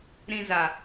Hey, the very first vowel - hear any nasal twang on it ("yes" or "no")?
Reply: yes